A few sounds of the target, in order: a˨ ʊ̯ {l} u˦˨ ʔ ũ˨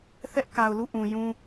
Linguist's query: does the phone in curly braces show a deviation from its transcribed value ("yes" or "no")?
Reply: no